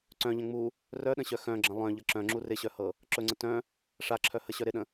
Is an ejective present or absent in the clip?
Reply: absent